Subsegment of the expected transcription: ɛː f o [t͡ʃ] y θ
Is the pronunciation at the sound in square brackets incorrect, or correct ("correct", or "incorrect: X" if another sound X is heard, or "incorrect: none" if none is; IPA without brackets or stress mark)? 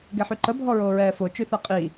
correct